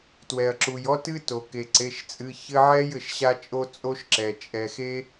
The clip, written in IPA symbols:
twɛ˩ɐ̯ǁu˩jɔ˦tɨ˦ to˩ ke˩ǀe˩˧˩ʃt͡sʼɨ˩˧˩çɘ˦ ʕɛ˦j ɘ˩ʃɕa˦t͡ʃʼo˦ t͡sʼo˦ʃǁɛ˩ t͡ʃʼɛ˩xe˦

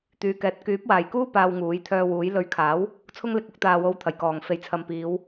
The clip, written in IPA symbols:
t̪yː˨kɛː˨˥t̚ kyː˨˥p̚waː˨jkuː˥ paː˧wŋuː˨˥jt̪ʰœː˧wuː˨˥j lɵ˨˧ɥkʰaː˨˥w | t͡sʰʊ˧ŋlɪ˨k̚ʊ˧k̚ t̪aː˨wo˨˧w t̪ʰɐ˨˩jkɔː˨˩ŋ fe˨˩jt͡sʰɐ˨mpiː˨˧w

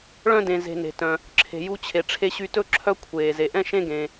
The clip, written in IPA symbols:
ɭœ̃˥dẽ˨ ze̤˨ne̤˩tœ̃˩ | ǁʰe̤˩ju˦t͡ɕʰe˩ ʈ͡ʂʰe˦ ɕy˦tɵ˥ ǁʰœ˦ kʷʰeː˩ze˩ʔɛ̃˥ ʃẽ˥ɡẽ˨

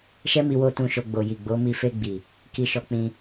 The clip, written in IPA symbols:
ʃɛ˦mi˧wo˧ tũ˨ʃo˨ ɡ͡bo˨ji˨ ɡ͡bo˨˦mi˧ fe˧ɡ͡bi˨ | ki˧ʃɔ˧k͡pĩ˧

